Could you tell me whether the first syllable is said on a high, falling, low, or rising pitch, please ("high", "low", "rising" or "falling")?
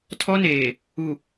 high